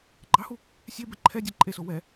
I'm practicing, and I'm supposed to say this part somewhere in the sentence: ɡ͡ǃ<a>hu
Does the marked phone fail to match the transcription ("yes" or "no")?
yes